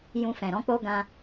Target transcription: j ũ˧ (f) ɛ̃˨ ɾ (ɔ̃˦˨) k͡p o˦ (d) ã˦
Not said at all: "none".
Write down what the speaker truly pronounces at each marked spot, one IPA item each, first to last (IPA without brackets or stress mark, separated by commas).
f, ɔ̃˦, ɡ